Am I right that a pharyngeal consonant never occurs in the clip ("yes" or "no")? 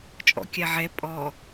no